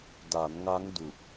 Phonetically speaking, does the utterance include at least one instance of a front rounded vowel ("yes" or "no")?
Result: no